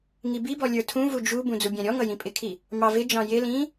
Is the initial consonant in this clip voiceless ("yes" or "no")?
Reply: no